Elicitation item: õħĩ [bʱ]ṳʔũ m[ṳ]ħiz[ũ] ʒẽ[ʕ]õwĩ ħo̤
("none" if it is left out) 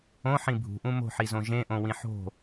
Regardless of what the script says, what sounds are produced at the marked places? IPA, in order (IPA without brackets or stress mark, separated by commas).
bʱ, o̤, õ, ʔ